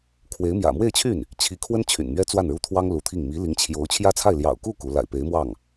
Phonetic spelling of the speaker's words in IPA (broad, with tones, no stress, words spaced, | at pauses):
kʰwe˧˥ɪ̯mjä̰˨˩ mwe˥˧ɪ̯t͡ɕʰy˥˩n | t͡ɕʰi˧˥kʰwə˥n t͡ɕʰy̰˨˩nmɥɛ˥ t͡swa˥˩nɻu˥t̪ʰwɑ˥ŋ lu˧˥t̪ʰi˥˩ŋ mi˧˥li˧˥ŋt͡ɕʰjo˧˥ʊ̯ t͡ɕʰjä˥t͡sʰa˥˩ɪ̯ ljɑ̰˨˩ʊ̯ku˥˩ ku˧˥ la̰˨˩ɪ̯pe˧˥ɪ̯mwɑ˥˩ŋ